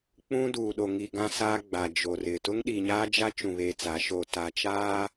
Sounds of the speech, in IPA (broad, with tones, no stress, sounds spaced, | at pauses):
k͡p ũ˦ d uː˨ ɗ o˨ ŋ i˨ ɡ ã˦ s aː˦ ɡ͡b a˨ d͡ʒ o˨ r ɪ˨ t ʊ˦ ŋ ɗ iː˨ ɲ aː˦ d͡ʒ a˦ t͡ʃ ũ˨ β eː˨ t͡s a˨˦ ʃ oː˨ t a˨ t͡ʃ aː˦